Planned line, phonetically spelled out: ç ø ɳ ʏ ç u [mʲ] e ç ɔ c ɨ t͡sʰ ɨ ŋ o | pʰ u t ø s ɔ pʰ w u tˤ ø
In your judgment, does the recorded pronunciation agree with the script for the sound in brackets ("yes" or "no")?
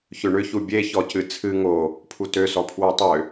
no